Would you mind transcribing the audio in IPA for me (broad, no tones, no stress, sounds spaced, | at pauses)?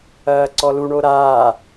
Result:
ɐː ǀ ɔ l u ɳ o ɾ aː